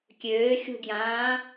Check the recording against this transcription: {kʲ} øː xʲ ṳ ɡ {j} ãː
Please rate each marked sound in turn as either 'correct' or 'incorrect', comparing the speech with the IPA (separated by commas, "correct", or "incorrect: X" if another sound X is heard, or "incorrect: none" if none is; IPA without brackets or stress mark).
correct, correct